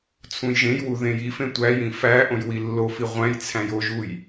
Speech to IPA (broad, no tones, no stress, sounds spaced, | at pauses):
t͡sʰ ũ j ʒ ẽ j w u ð ẽ j i f ẽ tʷ æ j ĩ f æ ʔ õ j w i lː o f i ʁʷ æ̃ j t͡sʰ æ̃ j o ʒ u j